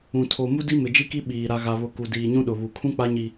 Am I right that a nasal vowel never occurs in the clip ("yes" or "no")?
no